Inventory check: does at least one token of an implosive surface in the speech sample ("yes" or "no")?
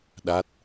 yes